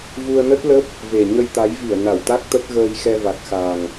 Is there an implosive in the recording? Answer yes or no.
no